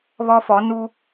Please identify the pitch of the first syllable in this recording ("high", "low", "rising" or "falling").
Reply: high